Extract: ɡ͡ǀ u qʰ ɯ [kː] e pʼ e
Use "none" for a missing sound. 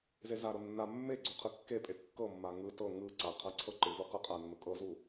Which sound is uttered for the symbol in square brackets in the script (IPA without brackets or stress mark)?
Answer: kː